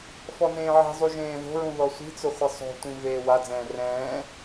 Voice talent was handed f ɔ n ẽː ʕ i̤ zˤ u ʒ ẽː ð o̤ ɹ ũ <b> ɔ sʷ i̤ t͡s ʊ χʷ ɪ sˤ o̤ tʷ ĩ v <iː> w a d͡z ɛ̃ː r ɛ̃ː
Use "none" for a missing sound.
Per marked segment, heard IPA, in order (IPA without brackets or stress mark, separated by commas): ð, eː